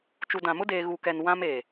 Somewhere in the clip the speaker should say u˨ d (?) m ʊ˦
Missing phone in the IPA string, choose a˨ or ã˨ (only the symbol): ã˨